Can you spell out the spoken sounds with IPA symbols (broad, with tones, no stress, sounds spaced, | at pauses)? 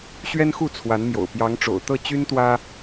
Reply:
ɕ ɥ ɛ˦ n x u˥˨ t͡sʰ w a˨˦ n m j o̰˨˩ ʊ̯ p j ɑ˨˦ ŋ ʈ͡ʂ o̰˨˩ ʊ̯ t̪ ɤ˥˨ t͡ɕ y˦ n t̪ w ä˦